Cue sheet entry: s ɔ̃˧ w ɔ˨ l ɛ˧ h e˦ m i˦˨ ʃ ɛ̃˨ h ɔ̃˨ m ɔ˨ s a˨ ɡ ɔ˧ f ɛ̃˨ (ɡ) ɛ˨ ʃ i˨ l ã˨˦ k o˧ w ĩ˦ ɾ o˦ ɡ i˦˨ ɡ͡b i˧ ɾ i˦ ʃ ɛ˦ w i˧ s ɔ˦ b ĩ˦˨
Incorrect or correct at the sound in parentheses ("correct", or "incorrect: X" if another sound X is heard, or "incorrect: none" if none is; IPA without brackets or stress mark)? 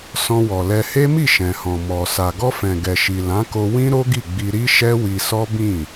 correct